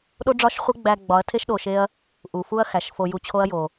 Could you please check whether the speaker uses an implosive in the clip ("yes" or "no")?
yes